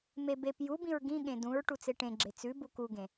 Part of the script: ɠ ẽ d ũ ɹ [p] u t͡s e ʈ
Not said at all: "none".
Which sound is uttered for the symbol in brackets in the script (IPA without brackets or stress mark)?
ʈ